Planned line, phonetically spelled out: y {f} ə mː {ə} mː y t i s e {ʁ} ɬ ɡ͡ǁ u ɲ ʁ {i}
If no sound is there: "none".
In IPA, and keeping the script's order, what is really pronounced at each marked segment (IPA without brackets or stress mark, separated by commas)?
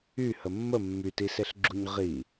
h, ə, none, i